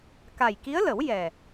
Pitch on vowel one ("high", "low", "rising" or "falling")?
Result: low